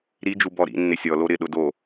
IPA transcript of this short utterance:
ɾid͡ʒu bɔɾḭ nːɪsʲɔlo ɾɪ ɗʊdo

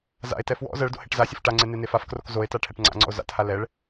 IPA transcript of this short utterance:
za̰e̯tɛ fwɔ̰ zɜɭdo̰ heʈzasʲɘf ʈaŋ͡ǀe nenefafkrok zoe̯ta ʈʰɛʈŋ͡ǀa̰ŋ͡ǀɔ̰o̯ za̰tha lɛɭ

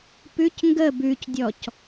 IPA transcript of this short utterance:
pʉc ŋɡə bʉcdʲɔc

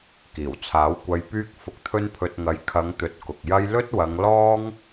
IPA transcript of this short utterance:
kiː˨˩wt͡sʰaː˨˥w kʷɐ˧jpyː˥k̚ fʊ˧k̚t̪ʰɵ˥npʰɵ˧t̚ ŋɐ˨j kʰɐ˨˧ŋt̪ɵ˨t̚ kʊ˨k̚jɐ˥j lɵ˥t̚wɐ˨˧ŋ lɔː˥ŋ

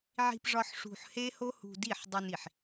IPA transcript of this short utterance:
ʕi̤˧pʐɒ˧ħ ʂṳ˧ħhe˦ho˦hṳ˧ di˦˨ħdˤu˧ni˨ħ

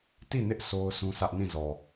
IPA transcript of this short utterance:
ti˦˨nɪ˦ʔ so˦ʊ̯ sũ˦sä˦ʔ nĩ˦˨zɔ˨

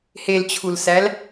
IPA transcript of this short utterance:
helt͡ɕʰulsæl

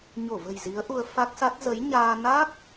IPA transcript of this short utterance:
ɲo˧˩və̤˨˩j zi˨˦ə̯ʔu˧ə̯ fa˦˥k̚sa˦˥t̚ zə˨˦jɲaː˧ na˦˥k̚

